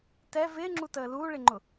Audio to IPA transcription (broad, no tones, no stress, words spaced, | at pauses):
tɛ vɪːŋ͡ǁutəː luːɭɪŋ͡ǃʊ